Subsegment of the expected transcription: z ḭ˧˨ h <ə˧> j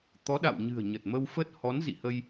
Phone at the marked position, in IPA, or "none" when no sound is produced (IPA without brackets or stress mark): ə˧